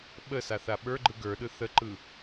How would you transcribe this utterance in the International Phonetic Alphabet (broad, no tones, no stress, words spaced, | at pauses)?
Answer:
ɓə saθaɓə˞ɡ͡ǃɯ ɡə˞ɗɯ θəǃɯ